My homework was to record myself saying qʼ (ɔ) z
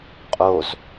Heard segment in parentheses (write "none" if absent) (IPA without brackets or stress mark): o